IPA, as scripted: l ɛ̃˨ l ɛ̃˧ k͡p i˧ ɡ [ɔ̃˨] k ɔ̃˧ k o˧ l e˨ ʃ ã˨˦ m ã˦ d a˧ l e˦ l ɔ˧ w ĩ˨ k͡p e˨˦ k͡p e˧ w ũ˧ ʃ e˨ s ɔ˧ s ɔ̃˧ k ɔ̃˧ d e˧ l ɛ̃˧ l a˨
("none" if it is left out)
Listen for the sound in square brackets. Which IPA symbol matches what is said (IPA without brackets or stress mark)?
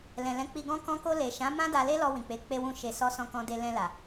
ɔ̃˧